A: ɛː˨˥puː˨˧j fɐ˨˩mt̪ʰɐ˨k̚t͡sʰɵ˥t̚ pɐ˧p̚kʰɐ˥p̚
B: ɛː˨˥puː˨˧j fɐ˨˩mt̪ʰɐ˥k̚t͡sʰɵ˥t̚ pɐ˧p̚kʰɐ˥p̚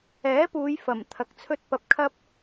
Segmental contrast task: A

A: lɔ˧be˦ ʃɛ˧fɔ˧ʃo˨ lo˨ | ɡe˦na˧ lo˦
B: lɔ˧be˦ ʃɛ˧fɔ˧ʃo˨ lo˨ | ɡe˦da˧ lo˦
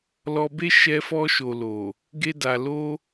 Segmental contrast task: B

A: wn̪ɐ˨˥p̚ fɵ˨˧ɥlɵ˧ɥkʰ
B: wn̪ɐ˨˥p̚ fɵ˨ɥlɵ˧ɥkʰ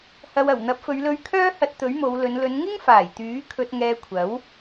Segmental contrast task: A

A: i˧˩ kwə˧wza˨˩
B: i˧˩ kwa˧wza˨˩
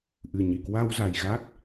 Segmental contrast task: B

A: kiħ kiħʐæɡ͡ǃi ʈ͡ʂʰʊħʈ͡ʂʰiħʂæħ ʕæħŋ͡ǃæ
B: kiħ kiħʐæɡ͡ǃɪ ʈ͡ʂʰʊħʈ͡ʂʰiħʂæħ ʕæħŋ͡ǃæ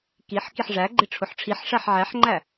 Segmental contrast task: B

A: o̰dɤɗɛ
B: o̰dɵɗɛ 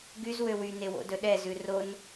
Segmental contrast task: B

